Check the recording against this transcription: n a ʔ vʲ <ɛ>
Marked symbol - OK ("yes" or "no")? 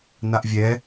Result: yes